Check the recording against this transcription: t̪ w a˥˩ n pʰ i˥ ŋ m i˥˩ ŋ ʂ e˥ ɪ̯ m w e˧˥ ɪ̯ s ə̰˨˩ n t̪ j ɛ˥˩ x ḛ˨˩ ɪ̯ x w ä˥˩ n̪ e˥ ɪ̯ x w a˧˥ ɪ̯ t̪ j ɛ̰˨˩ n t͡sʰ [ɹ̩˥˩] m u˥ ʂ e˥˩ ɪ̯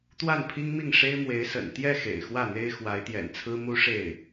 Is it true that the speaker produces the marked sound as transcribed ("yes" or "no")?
no